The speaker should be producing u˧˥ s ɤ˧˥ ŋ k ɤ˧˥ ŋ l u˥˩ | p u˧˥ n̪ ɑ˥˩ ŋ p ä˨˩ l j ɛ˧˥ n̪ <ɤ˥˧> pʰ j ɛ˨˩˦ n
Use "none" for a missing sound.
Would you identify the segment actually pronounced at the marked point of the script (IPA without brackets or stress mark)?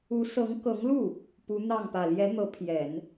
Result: ɤ˧˥